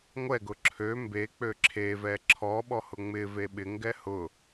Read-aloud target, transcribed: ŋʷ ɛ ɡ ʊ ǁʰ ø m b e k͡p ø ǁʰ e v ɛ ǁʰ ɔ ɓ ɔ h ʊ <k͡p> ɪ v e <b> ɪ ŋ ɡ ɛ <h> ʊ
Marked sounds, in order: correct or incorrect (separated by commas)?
incorrect, incorrect, correct